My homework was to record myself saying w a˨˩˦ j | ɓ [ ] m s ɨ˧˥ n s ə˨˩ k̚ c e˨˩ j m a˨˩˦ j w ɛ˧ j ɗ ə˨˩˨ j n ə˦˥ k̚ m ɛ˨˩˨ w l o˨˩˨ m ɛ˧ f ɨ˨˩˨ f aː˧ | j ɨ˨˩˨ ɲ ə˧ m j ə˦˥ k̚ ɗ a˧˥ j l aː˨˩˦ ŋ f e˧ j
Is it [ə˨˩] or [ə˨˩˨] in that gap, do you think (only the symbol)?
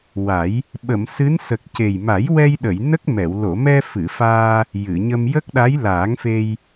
ə˨˩˨